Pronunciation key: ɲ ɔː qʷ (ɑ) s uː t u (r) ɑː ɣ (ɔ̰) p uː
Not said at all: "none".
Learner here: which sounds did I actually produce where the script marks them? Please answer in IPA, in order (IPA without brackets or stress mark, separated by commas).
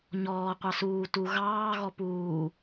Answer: ɑ, ɣ, ɔ